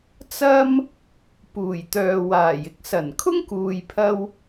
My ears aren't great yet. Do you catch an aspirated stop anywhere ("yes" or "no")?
yes